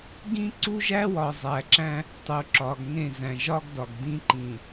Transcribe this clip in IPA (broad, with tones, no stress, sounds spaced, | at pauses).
ɡ ĩ˦ ǀ u˦ ʒ æ˦ w ɒ˨ zˤ æ˨ ǁ æ̃˦ | tˤ u˨ ǁ ɒ˨ ɡ ŋ ẽ˦˨ z æ̃˨ ʒ ɒ˦ ɡ d ɒ˨ ɡ d ĩ˦ ǃ ĩ˨